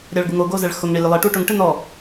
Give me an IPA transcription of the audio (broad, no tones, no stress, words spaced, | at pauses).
ɾʲaɭɡuŋo ɡozɛɭxʊŋ ɳilʲʊlˠe ʈuʈʊŋ ʈɪnɔ